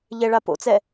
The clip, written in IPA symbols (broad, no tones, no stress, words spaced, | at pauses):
ʎɛɭapo̰t͡sɛ